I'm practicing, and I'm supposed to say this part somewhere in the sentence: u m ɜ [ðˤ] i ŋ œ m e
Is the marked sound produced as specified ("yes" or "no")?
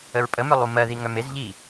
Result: no